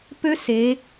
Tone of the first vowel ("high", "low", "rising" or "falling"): high